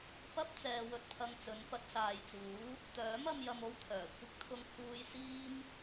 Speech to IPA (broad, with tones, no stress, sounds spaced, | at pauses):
p ɐ˥ p̚ t͡s ɛː˧ w ɵ˧ t̚ pʰ ɐ˧ ŋ t͡s ɵ˨˧ n p ɐ˧ t̚ s aː˨ j t͡s uː˨˥ | t̪ œː˨˥ m ɐ˨˧ m j ɐ˧ m o˥ w t̪ʰ œː˨˩ kʷʰ ɪ˥ k̚ t̪ʰ ʊ˧ ŋ kʰ uː˧ j s iː˥ m